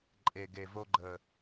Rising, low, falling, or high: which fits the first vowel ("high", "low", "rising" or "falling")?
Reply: low